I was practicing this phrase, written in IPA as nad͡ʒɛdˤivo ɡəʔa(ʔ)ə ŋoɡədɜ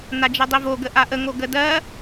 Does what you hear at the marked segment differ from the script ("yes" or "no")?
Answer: no